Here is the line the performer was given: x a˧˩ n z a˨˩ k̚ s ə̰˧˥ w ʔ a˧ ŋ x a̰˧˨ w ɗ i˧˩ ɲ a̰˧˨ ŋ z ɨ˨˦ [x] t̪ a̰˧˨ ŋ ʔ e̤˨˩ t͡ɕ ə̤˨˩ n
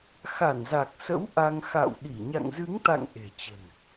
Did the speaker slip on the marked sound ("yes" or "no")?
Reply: yes